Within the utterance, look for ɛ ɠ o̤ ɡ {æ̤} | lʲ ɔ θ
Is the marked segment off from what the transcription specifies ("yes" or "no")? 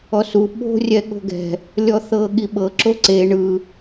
yes